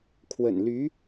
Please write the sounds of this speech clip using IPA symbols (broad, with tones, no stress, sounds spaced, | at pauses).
kʰ w ə̰˨˩ n l y˧˥